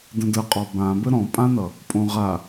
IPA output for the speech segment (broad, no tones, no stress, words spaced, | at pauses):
də̃də qʼɔbãbə ɾɔ̃pʼãnʌ | pʼõʁa